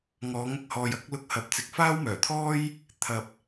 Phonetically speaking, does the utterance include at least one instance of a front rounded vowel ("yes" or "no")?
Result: yes